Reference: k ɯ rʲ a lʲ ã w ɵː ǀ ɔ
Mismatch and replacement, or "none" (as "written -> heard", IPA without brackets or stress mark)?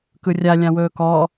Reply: ǀ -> k